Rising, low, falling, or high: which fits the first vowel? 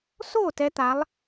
falling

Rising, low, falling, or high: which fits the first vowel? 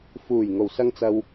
low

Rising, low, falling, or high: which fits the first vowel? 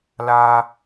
high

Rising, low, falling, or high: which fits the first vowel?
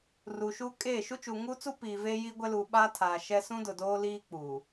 low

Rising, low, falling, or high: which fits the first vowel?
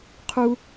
high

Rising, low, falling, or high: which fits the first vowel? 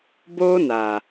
high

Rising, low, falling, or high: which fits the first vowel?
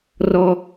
high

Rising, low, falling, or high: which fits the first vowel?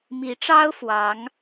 rising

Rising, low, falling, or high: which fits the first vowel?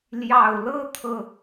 low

